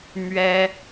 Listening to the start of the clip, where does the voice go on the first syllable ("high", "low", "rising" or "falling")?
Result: high